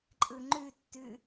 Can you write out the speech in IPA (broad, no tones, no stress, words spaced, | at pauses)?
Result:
ǃʼɯŋ͡ǃʉtːʉ